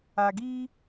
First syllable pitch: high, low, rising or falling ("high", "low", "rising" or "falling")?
low